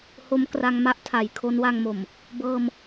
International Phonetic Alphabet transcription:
ho˦˥mkra˧ŋma˥˩ʔ tʰa˩˦j kʰo˦˥nwa˧ŋmo˨˩m | bɤː˧m

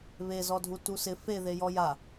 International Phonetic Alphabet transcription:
βezɔdʱu tusɪ fe ðejɔja

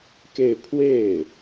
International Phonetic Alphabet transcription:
ke˥˧ɪ̯ pʰwe˥˩ɪ̯

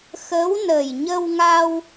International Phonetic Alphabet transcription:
xə˧˥wnə˨˩j ɲə˧wŋa˧w

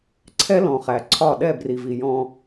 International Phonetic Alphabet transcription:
ǀʰɛ˦ lɔ̃˨χæ˨ǀʰɒ˦˨ ɗɛ˦˨bri˨vi˨ jɔ̃˧

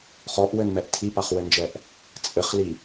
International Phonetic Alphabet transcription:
χɔʔwɘnmɛʔ tʰipaχwɘnd͡ʒɛʔ | t͡sʼɘχli

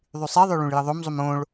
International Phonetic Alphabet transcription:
ðˤysˤeðˤø ɭũɭjəðˤomzˤum õɭ

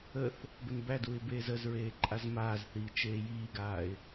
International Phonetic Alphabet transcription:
əθ | bənbæduɪ̯ beːzəzɹeː ǃʼazmaːzθiː t͡ʃeːjiːɡaːɪ̯

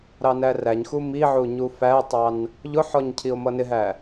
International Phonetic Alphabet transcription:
ɾɑnæræɲxu miʕu ɲufætˤɑn | ʎʊħɔɲ cʰio̯mʌnɪɦæ

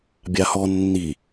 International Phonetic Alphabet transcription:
bʲahɔ nːi

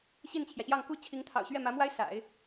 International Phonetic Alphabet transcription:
ɕi˥˩nt͡ɕʰjä˩ɕjɑ˥˩ŋ ku˥t͡ɕʰi˧˥ŋt̪ʰɑ̰˨˩ʊ̯ɕɥɛ˥˩ mä˧˥mwa˥ɪ̯ sa̰˨˩˦ɪ̯

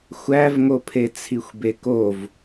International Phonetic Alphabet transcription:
xʷævŋopʰe t͡sʰixʷbekov

